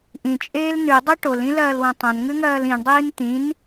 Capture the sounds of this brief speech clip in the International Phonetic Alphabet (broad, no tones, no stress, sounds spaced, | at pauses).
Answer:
ʔ ĩ t͡ʃʼ eː l n ʉ dˤ o ʈ o l ĩ l ɐː l w ɐ̃ tˤ ɐ̃ n ŋ ʉ ŋ ɐː l ĩ ɳ dˤ iː n t̪ ĩ n